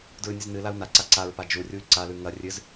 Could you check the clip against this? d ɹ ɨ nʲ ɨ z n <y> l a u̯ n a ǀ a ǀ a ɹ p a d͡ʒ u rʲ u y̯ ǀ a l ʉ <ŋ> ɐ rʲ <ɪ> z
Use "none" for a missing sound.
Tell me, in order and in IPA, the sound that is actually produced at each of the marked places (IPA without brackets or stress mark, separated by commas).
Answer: ɨ, ŋ, ɨ